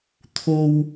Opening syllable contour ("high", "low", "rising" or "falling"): high